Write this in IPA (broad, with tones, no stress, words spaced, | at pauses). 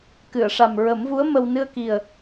kɨ˨˩˨ə̯ʂa˨˩mɹə˨˩˦mvu˧˥ə̯ mə˧w nɨ˧ə̯ki˨˩ə̯